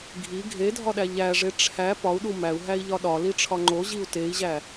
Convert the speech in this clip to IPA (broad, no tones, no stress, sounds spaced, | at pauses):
ɡʱ i ɡʱ e dʱ ɒ ɗ æ ʎ æ ʐ e ʈ͡ʂʰ æ p ɒ u̯ ɗ u m æ u̯ ɦ æ i̯ ʎ ɒ ɗ ɒ l i ʈ͡ʂʰ ɒ ŋ͡ǃ o ʑ i u̯ t e i̯ ʑ æ